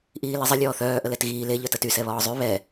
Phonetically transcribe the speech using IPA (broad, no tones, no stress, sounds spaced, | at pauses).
ʔ iː l e zˤ ə lʲ ɔː θ œː ʔ ə l ɛ t ɣ iː l e ʎ œ t ə t y s ɛ β ɔː zˤ y β ɛ